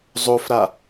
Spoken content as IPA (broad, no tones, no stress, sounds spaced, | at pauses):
zˤ o f ɾ a